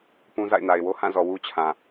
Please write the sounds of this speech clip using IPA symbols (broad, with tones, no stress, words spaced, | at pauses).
pũ˦ za̰˦˨ɪ̯na˨ɪ̯wo˦ hã˦˨zɔ˨ wu˦t͡ɕʰã˨